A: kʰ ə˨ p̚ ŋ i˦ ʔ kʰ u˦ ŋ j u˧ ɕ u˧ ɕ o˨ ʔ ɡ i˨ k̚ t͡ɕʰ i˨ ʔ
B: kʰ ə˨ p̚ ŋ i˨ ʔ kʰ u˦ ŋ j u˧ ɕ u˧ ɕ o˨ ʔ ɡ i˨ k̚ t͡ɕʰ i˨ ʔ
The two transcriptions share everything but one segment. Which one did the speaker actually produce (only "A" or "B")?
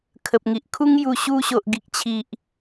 B